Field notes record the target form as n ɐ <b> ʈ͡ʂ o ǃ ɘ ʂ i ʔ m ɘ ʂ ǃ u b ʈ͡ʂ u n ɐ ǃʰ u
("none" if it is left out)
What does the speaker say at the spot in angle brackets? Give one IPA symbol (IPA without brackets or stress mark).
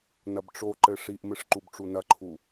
b